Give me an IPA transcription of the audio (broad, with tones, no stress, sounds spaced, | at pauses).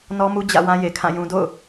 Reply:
n ɔ˦ m u˦ d͡ʑ ä̰˦˨ w ã˦ j e˨ kʰ ã˦˨ j ũ˨ d o̰˦˨ ʊ̯